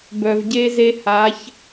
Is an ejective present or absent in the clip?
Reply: absent